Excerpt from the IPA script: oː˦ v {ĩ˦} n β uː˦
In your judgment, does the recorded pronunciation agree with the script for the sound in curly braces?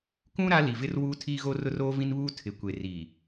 yes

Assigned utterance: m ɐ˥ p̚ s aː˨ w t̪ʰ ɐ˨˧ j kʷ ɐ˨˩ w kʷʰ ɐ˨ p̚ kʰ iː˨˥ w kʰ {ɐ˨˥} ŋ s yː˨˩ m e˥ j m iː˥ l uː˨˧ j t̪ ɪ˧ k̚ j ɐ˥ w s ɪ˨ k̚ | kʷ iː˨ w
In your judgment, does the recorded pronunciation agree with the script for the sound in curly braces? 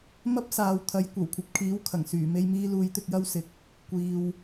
no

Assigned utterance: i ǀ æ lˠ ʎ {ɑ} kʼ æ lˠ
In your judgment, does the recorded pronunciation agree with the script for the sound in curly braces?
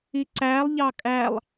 yes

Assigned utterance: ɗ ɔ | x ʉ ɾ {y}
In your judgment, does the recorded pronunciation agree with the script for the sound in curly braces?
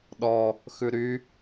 yes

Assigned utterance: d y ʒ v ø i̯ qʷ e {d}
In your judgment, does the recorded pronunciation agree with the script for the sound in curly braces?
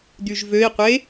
no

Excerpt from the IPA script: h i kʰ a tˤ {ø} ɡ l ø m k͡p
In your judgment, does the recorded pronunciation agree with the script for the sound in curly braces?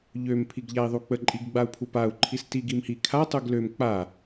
no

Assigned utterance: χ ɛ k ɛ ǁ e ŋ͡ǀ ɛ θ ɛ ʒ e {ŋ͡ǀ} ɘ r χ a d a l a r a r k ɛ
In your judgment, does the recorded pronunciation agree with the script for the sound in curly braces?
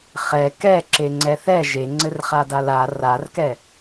yes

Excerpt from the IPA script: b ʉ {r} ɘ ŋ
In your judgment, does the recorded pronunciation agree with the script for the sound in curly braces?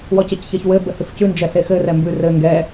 yes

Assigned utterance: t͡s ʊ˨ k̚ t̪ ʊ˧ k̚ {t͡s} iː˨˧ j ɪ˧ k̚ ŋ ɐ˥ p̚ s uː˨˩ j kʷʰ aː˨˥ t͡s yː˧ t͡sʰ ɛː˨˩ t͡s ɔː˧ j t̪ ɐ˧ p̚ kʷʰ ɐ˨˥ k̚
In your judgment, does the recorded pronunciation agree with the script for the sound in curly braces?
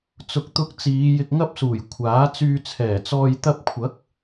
yes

